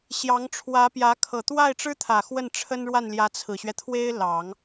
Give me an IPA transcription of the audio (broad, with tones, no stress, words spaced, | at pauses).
ɕjɑ˧˥ŋʈ͡ʂʰwä˧˥pjä˧˥ kʰɤ˨˩t̪wa˥˩ɪ̯ʈ͡ʂɻ̩˥t̪ʰä˨˩ xwə˥˩nʈ͡ʂʰə˥nɻwa˥˩nljä˧˥ t͡sʰɹ̩˨˩ɕɥɛ˦t̪ʰwe˥ɪ̯ lɑ˨˩˦ŋ